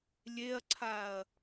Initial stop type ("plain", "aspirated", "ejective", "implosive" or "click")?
click